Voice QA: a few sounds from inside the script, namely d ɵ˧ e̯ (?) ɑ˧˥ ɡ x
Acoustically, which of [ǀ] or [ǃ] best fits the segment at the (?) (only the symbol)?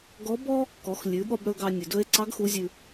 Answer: ǀ